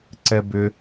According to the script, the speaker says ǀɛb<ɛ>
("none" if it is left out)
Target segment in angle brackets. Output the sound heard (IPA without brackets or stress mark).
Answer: ʏ